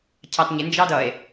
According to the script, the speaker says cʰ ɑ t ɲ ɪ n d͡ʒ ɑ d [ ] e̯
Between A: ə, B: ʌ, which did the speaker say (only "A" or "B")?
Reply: B